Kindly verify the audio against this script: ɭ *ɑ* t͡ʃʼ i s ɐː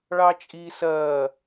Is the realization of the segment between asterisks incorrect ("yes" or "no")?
no